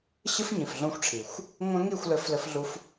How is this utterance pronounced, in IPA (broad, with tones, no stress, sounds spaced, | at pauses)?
ɕ ɨ˦ f ɲ ĩ˨ f ɮ õ˧ xʷ ʈ͡ʂʰ i˨ xʷ | ŋʷ ɐ̃˦ ŋ i˦˨ xʷ l ɘ˧ f l ɘ˧ f ɮ u˧ f